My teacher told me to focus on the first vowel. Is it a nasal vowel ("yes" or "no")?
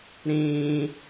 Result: yes